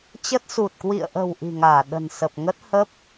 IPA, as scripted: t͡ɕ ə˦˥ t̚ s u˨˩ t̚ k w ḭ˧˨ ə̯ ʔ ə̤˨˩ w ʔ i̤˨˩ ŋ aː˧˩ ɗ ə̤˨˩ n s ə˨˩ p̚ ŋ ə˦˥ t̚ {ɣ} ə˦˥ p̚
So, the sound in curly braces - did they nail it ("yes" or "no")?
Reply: no